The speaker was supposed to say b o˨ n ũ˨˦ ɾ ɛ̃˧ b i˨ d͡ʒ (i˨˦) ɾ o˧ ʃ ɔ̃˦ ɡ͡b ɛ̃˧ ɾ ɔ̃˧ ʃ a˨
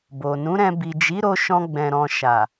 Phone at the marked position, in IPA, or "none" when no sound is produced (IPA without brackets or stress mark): i˨˦